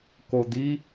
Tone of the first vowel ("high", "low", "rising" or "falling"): low